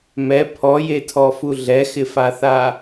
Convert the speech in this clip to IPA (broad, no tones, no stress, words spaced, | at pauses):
mɛ pʰɔjetʰɔfu ɮɛxɪfaθa